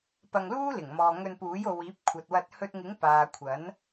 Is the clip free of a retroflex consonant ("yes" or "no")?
yes